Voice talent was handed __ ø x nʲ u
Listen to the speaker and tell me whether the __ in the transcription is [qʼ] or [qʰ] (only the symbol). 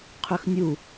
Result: qʰ